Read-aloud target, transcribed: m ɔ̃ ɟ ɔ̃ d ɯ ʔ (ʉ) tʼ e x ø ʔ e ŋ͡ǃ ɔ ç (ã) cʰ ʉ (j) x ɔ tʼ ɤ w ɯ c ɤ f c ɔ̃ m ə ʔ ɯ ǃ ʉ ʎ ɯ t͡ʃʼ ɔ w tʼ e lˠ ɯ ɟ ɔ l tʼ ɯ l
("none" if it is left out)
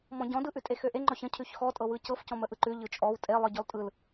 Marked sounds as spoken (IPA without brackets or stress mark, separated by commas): ʉ, ə̃, ç